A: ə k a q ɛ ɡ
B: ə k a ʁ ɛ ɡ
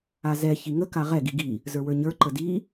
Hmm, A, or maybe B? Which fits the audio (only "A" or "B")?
B